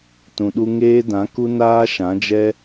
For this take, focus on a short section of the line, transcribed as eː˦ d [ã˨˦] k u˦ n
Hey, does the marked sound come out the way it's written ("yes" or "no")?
yes